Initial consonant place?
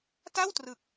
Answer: alveolar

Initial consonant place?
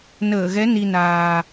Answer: alveolar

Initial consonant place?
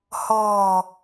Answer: glottal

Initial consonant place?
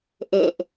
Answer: glottal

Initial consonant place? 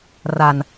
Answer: alveolar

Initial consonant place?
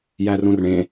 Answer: palatal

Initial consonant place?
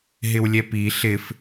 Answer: glottal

